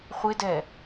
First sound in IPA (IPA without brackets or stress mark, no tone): χʷ